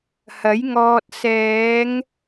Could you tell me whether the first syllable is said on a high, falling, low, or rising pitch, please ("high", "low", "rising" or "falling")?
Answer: rising